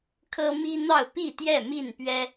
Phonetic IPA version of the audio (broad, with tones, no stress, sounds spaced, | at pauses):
kʰ ɤ˦ m i˦ n̪ ɑ˥˨ ʊ̯ p i˥˨ t̪ j ɛ˥˨ m i˥˨ n p ɥ ɛ˦